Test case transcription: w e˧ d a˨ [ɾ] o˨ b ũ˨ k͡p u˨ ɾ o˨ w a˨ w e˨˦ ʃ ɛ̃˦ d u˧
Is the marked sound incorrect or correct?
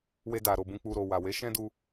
correct